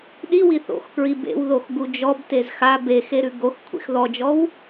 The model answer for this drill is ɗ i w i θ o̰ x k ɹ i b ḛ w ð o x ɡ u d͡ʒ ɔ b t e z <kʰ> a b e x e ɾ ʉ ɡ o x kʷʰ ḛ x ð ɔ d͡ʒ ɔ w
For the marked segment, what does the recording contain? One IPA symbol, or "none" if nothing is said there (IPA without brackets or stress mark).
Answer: x